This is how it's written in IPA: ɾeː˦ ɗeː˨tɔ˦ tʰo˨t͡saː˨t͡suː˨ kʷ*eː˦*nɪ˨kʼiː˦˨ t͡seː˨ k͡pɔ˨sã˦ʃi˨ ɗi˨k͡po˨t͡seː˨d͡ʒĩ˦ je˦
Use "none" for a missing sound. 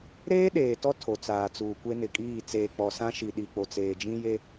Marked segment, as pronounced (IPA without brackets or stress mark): e˦